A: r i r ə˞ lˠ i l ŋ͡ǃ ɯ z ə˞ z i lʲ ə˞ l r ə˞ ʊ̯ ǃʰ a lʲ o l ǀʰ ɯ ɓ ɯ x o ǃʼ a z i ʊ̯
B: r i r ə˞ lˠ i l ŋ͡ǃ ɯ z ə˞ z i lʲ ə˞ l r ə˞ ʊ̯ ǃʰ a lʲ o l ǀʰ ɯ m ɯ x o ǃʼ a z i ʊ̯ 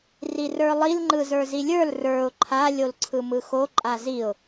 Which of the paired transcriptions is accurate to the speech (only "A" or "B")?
B